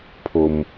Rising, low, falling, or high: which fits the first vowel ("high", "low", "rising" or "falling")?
high